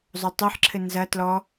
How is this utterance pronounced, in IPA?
zˤ o tˤ ɘ ħ ǁʰ ɘ n z ɐ t l ɔ

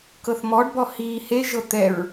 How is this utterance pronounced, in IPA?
k ɤ θ m ɔ ɖ b ɔ h iː h e ʒ ɤ t̪ ɛ ɹ

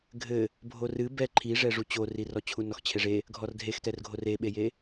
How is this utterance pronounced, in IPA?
ɡʱ ɘ | bʱ o r ɨ b ɛ ǃʰ i ʐ ɛ ʐ u t͡ɕ o r i r ɔ t͡ɕʰ u n ɔ x t͡ɕʰ e ʐ e | ɡʱ ɔ r dʱ e x t ɛ r ɡʱ o r e ɓ e j e

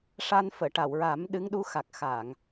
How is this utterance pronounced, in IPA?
ʂ a˧ n f əː˨˩˨ ʈ a˨˩˨ w ɹ a˨˩˦ m ɗ ɨ˧˥ ŋ ɗ u˧˥ x a˨˩ k̚ x a˨˩˨ ŋ

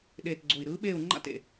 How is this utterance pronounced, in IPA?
ɗ eː˨˩ t ɡ͡ǀ o˨˩ i̯ ɾ ɯː˧˥ ɓ eː˦˨ u̯ ŋ͡ǃ a̰˦˨ t ḛ˨˩

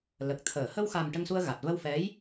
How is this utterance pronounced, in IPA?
l ə˨˩ k̚ t̪ʰ əː˨˩˨ h ə˧ w x a˨˩ m ʈ ə˧ ŋ s u˧ ə̯ ɣ a˨˩ t̚ v ə˧ w f ɛ˧˥ j

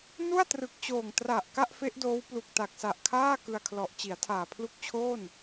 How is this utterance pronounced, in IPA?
n u˥˩ a̯ t r ɯ˨˩ k̚ t͡ɕ oː˨˩ ŋ t r a˨˩ ʔ k a˥˩ ʔ f e˦˥ ʔ d oː˦˥ w p l u˨˩ k̚ t a˨˩ k̚ s a˨˩ ʔ kʰ aː˥˩ k ɯ˧ a̯ kʰ l ɔ˨˩ ʔ t͡ɕ i˩˦ a̯ tʰ aː˨˩ pʰ l u˦˥ k̚ t͡ɕʰ oː˥˩ n

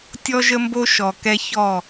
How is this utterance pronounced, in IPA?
tʲ ɔ˦ ʒ ə˦ m b o˦ ʃ ɔ˨ k ɛ˦ ç ɔ˦˨

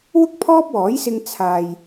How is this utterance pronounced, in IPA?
w ʊ˥ k̚ pʰ ɔː˥ p̚ w ɔː˨˥ j s ɪ˧ ŋ t͡sʰ aː˨ j

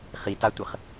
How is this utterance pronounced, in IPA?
χ i t a tʷ ɘ χ

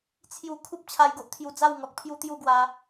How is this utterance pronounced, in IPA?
t͡sʰ j u˧ kʰ u˦ p̚ t͡ɕʰ a˧ j ɡ o˦ ʔ t̪ʰ j u˧ d͡z a˥˧ w ŋ ɔ˨ k̚ pʰ j u˦ t̪ j u˥˧ ɡ w a˧

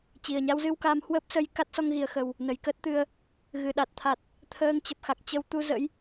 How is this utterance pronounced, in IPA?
t͡ɕ i˨˩ ə̯ ɲ a˧ w z ɨ˧ w k a˧ m h w əː˦˥ p̚ s ə˧ j k a˦˥ t̚ s ɔ˧ ŋ ɣ i˨˩ ə̯ x ə˨˩ w | n ə˨˩ j k əː˦˥ t̚ t̪ ɨ˧ ə̯ | ɣ ɨ˨˩ ɗ a˨˩ t̚ t̪ʰ a˨˩ t̚ | t̪ʰ əː˧ ŋ t͡ɕ ə˨˩ p̚ x a˨˩ k̚ t͡ɕ ə˧ w t̪ u˧ z ə̰˧˥ j

